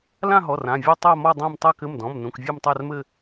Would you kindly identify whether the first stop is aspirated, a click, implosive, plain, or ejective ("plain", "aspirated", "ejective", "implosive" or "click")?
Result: plain